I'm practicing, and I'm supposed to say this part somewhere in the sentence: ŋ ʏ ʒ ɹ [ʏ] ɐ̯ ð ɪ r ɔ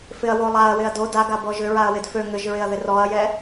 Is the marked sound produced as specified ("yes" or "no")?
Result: no